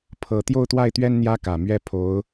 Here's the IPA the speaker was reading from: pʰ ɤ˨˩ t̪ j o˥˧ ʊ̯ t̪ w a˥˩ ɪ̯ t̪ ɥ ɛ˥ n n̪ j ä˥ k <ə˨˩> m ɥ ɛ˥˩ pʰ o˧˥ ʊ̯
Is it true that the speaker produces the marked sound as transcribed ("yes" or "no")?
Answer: no